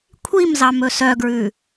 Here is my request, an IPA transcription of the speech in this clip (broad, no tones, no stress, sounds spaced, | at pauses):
kʷʰ i m z ɑ m ɵ s œ ɡ ɹ ʉ